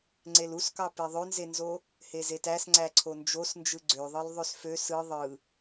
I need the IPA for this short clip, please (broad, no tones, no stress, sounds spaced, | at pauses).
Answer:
ŋ͡ǀ e l u s k ɑ p e ðˤ ø n z e n z o | h e z e t æ s ŋ͡ǀ æ ǀʰ o n d͡ʒ o s n d͡ʒ ɯ ɡ͡ǀ ø ðˤ ɯ l ðˤ ø s f ø s ɯ ðˤ ɯ